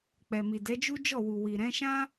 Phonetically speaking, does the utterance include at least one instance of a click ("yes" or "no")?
no